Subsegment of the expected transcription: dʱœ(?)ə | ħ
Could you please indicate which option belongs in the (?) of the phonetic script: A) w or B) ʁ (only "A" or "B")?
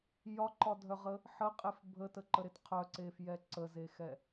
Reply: B